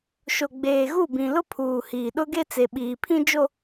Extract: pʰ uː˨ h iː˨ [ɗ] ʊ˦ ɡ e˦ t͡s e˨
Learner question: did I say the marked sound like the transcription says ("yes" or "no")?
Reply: yes